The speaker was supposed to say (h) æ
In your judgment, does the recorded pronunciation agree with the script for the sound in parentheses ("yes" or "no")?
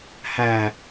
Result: yes